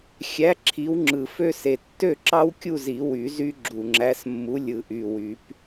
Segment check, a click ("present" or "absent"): present